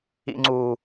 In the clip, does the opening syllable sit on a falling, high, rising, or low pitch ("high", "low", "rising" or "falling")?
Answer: low